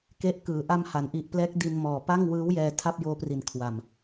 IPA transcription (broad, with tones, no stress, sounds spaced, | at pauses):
k e˦˥ ʔ k ɯː˩˦ ʔ a˧ m h a˩˦ n ʔ i˨˩ ʔ p l ɛː˦˥ k̚ d i˧ n m ɔː˨˩ p a˥˩ ŋ w ɯː˦˥ w j ɛː˧ tʰ a˥˩ p̚ j oː˦˥ p r i˨˩ n kʰ w a˨˩ m